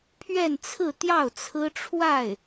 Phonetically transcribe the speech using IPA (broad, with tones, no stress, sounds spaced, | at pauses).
pʰ ɥ ɛ˥˧ n t͡sʰ ɹ̩˥˧ t̪ j ɑ˥˩ ʊ̯ t͡sʰ ɹ̩˥ ʈ͡ʂʰ w a˥˩ ɪ̯